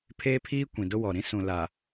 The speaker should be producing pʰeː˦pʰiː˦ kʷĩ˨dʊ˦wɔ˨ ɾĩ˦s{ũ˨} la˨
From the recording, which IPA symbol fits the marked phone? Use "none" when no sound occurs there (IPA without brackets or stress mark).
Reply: ũ˨